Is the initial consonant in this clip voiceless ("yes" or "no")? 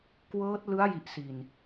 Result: yes